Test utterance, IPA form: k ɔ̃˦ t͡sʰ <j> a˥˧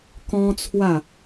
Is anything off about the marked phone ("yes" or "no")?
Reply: yes